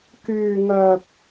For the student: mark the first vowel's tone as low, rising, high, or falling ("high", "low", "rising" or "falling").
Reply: low